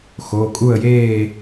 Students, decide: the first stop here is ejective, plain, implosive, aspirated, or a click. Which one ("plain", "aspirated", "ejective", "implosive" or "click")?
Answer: ejective